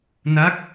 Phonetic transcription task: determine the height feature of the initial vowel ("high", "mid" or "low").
low